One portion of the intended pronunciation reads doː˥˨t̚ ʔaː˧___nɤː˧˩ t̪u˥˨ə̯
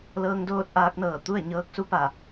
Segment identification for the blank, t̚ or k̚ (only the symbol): k̚